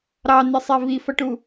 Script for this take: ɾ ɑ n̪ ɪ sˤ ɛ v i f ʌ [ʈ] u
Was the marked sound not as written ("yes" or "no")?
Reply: no